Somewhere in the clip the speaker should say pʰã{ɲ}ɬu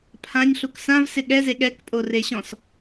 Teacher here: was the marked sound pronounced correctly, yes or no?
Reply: yes